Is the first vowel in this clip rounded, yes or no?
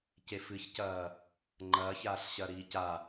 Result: no